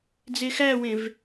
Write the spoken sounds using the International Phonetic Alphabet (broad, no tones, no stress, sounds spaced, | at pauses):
d͡z e x æ w ẽ v